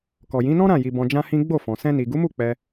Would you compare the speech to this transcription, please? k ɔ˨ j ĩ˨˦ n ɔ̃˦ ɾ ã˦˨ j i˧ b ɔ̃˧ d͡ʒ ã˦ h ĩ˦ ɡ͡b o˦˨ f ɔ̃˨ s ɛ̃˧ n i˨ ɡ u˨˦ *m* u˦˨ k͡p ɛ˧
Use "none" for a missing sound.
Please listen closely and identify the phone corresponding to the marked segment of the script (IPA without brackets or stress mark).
m